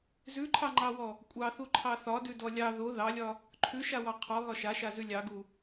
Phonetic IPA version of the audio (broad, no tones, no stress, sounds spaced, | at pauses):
z ʉ ǃʰ ɑ ŋ͡ǃ ɑ w ɔ | kʷʼ ɑ θ u ǃʰ ɑ θ ɒ d ʉ d ɔ lʲ ɑ ð o ð ɑ lʲ ɒ | ǃʰ ʉ ʃ a w ɑ qʰ ɔ ɣ ɒ ʃ a ʃ a z ʉ lʲ ɑ ɡ u